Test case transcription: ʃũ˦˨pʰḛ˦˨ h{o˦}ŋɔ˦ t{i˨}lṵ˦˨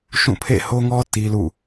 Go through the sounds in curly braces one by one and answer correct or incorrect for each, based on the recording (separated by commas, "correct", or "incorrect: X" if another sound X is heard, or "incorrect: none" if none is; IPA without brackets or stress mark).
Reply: correct, incorrect: i˦